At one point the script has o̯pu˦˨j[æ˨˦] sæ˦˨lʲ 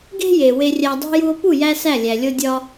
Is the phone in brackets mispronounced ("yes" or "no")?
yes